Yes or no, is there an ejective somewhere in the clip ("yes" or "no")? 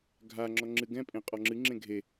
yes